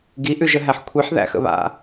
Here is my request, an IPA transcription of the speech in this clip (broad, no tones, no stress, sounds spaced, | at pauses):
ɡ i ʔ ʉ ʒ ə ɦ æ ħ kʷʰ i ħ ð æ̰ x ə̰ β a̰